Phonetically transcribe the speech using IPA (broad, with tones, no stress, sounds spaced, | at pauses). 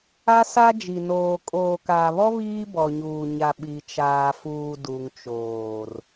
a˦ s a˦ d͡ʒ i˨ n oː˨ kʼ oː˨ k aː˨ β ɔ˦ β iː˦ b ɔ˨ ɲ uː˨ ɲ a˨ ɓ i˨ t͡ʃ aː˨ f uː˨ d u˨ ŋ t͡ʃ oː˨ r